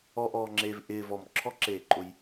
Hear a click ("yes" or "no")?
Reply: yes